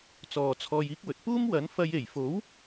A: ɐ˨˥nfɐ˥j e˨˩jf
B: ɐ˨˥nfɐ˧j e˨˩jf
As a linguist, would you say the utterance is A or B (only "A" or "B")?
B